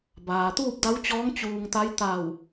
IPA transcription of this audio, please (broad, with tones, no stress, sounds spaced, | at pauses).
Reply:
b aː˩ t̪ uː˥˨ p̚ d a˧˥ w t͡ɕ ɔː˧˥ ŋ t͡ɕ uː˧ ŋ t̪ a˧˥ j t̪ a˧˩ w